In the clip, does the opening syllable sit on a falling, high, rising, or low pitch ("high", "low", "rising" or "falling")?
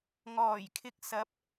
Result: low